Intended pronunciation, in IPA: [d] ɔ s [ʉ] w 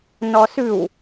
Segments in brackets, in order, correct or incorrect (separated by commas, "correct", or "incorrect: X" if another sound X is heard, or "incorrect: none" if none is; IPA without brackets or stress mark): incorrect: n, correct